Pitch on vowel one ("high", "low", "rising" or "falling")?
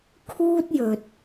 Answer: high